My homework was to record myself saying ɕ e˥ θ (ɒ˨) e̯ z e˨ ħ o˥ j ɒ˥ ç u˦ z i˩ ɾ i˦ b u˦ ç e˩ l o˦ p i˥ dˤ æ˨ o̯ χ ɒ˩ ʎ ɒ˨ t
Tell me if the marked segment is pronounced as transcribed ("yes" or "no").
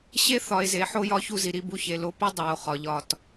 yes